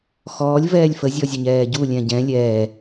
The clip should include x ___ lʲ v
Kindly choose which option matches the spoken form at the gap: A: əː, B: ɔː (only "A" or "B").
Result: B